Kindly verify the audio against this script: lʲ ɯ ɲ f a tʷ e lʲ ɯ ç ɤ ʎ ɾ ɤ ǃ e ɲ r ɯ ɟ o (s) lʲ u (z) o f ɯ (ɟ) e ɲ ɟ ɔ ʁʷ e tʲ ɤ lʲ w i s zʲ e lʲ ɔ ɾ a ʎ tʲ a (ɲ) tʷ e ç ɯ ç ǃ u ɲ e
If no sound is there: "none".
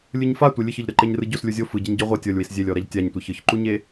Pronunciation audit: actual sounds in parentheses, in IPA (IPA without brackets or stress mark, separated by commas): s, zʲ, ɟ, ɲ